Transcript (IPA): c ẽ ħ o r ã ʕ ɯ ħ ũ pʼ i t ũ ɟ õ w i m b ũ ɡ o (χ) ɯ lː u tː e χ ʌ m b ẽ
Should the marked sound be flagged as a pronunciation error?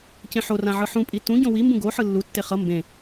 yes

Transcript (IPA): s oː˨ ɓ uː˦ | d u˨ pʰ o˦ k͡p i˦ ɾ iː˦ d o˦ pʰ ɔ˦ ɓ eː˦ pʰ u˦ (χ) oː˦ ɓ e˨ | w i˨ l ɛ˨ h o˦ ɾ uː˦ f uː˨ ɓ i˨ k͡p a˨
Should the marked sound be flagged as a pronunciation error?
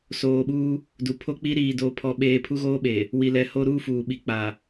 yes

